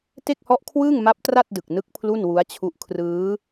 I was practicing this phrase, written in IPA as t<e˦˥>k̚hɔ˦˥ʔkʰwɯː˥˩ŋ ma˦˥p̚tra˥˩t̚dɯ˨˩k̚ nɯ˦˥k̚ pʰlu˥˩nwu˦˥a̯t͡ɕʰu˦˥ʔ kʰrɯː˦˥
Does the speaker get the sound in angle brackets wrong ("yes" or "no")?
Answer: yes